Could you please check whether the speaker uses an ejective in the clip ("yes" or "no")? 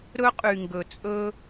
yes